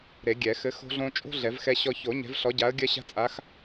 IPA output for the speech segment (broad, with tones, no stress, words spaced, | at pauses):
ɾe˨˩˦ɡʲɛ˨˩˦ xɘ˨˦ xo̤˦ɮõ˦ t͡ʃʼo̤˦ ɮɛ˨˩˦vxɛ˦ɕɔ˦ ço˨˩˦ ɲɛ̤˨˦vɬɔ˨˦ɟa˨˦ə̯ ɡʲɜ˦ɕa̤˦t͡sʼa˨˦x